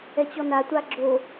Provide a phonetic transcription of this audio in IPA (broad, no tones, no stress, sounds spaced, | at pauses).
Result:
ɛ t͡ɕ ɔ n a tʷ a ɡ͡ǁ o